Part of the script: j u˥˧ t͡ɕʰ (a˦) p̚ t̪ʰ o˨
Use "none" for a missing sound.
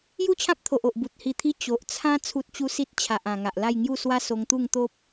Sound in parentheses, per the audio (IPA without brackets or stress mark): ã˦